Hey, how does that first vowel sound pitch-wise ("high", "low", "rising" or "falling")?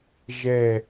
low